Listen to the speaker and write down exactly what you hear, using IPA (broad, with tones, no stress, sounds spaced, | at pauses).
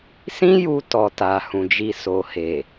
s ĩ˦ j u˧ t ɔ˨ t a˨ h ũ˨ d͡ʒ i˧ s o˨ h e˨